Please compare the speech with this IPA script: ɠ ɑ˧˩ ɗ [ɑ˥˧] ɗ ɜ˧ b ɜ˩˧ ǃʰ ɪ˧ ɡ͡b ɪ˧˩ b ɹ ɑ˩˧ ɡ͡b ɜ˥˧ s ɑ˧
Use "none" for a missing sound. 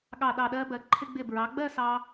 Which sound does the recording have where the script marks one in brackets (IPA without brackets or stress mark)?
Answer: ɑ˧˩